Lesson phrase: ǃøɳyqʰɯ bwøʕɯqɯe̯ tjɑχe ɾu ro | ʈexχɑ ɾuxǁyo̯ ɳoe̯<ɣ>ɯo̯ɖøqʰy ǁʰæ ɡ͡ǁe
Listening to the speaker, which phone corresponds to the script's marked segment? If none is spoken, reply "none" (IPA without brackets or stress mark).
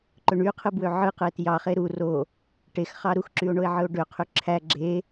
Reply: ʕ